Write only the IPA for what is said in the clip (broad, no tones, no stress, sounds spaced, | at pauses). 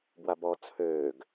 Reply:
b w a b ɔ t͡sʰ øː ɡ